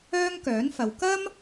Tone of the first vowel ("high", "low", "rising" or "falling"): high